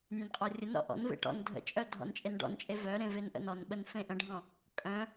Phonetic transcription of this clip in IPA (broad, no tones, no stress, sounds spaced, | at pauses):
nʲ ẽ n qʼ ɔ rʲ ə n ɾ ɔ̰ ʔ ɔ̰ n v ḛ ʈ ɔ̰ n dʱ ə̰ t͡ʃʼ œ dʱ ɔ̰ n t͡ʃʼ e n ɖ ɔ̰ n t͡ʃʼ e v œ ɾ ẽ v e n ʔ ə̰ n ɔ n ɓ ə n f ẽ ʔ ə̃ ɖʱ ɔ̃ | kʼ œ̃